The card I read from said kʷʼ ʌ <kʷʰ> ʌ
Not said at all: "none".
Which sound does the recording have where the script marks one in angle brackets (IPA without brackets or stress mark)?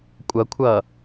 kʷʰ